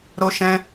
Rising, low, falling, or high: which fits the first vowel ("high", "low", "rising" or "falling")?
high